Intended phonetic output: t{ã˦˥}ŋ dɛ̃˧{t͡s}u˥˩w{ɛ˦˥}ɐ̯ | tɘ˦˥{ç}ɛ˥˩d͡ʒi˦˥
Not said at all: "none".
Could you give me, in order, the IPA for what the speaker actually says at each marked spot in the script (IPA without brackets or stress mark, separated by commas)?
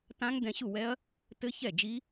ã˦˥, ɕ, ɛ˦˥, ç